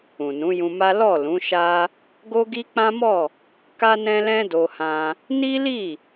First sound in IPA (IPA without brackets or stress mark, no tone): ũ